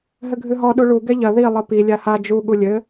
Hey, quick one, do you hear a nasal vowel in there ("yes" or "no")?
no